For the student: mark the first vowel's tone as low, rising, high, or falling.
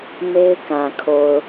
high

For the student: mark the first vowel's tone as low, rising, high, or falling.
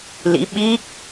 rising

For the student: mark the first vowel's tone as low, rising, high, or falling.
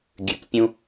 low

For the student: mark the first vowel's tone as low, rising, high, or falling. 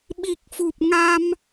low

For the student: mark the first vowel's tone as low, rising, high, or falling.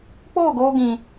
falling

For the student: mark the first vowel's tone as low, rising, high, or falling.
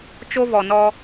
high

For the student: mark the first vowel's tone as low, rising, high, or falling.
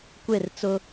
falling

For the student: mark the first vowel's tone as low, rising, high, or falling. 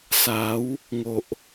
rising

